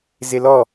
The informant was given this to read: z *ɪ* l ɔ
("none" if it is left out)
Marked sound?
ɪ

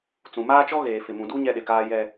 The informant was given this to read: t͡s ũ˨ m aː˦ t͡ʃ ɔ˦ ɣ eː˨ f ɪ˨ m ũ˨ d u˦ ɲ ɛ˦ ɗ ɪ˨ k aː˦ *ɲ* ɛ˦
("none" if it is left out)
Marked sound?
j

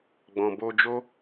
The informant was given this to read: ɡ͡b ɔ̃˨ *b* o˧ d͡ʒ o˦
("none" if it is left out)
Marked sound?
b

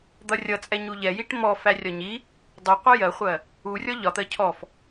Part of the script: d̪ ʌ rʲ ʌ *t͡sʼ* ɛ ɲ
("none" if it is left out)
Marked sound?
t͡sʼ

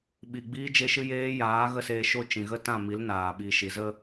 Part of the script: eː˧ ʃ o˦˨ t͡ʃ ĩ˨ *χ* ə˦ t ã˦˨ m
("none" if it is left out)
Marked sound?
ɣ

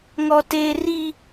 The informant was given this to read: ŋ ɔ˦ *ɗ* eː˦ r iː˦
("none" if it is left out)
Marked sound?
t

